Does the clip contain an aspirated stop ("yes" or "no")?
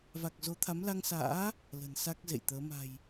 yes